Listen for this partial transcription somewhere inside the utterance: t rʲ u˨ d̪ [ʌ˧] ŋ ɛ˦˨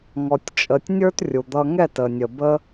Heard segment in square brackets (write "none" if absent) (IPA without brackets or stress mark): ʌ˧